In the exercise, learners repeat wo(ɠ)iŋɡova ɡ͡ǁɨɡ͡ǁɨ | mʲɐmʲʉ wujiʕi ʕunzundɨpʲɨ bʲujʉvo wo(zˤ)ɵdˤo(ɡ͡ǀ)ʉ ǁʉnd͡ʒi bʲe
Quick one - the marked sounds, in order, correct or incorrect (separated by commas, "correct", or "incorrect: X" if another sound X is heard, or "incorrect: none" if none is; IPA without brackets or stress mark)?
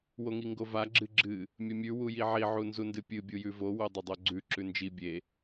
incorrect: ŋ, incorrect: dˤ, correct